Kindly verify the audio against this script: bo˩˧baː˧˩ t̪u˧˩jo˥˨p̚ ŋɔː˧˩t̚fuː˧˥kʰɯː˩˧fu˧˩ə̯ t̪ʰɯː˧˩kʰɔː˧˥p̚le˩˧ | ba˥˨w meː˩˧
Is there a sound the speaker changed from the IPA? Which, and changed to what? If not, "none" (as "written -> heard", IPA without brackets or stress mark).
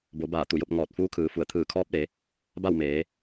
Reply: none